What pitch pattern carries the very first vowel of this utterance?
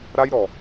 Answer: high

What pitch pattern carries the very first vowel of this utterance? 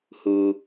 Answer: low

